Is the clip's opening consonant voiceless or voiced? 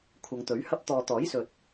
voiceless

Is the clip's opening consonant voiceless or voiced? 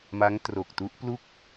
voiced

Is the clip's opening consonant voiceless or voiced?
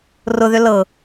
voiced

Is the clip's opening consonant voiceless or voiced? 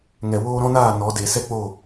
voiced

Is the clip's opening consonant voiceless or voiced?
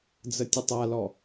voiced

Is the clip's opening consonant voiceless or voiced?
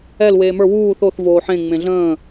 voiced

